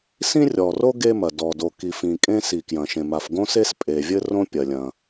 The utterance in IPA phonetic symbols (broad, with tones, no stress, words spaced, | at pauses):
sĩ˥rʲɔ˩ro˥ ɡe˥mɐ˩ dɔ˩ do˩ki˩fĩ˩ kʼẽ˥si˩kjɐ̃˩ʃẽ˩ ma˩fɡõ˥se˥s pʼe˩vʲɘ˥rõ˥ pʲɐ˩lʲɐ̃˩